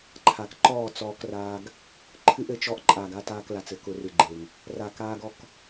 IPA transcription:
ǃʰ a˨ k ǃ ɔː˦˨ t͡s ɔː˧ k r aː˧ ɡ | ǃʰ ɨ˧ ʔ ɘ˨ t͡ʃ ɔ˧ ʔ ǃʼ aː˨ ɡ a˧ t aː˧ k l a˨ t͡s ɘ˦ k ʊ˧ r ɨ˨ ɡ͡ǃ e˨ ŋ | r a˨ k aː˧ ɡ ɔ˧ k

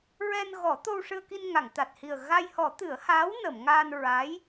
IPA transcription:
ɹ ɛ˧ n ɣ ɔ˨˩˦ t̪ o˧ w ʂ ɨ˧ ə̯ k i˧ n ŋ a˨˩˨ ŋ t̪ a˨˩ t̚ h i˨˩ ə̯ ɣ a˧ j h ɔ˨˩˦ t̪ ɨ˨˩˦ ə̯ h aː˧˥ w n ə˨˩˨ m ŋ aː˧ n ɹ a˧˥ j

